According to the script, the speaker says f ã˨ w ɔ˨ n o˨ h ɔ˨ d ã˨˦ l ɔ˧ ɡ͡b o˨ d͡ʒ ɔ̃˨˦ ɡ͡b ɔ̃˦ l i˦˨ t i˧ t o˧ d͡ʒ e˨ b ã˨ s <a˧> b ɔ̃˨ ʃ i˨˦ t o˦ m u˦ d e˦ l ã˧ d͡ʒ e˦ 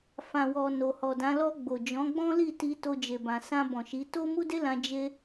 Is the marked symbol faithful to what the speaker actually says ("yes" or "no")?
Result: no